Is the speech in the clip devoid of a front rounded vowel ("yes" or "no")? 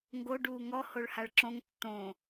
yes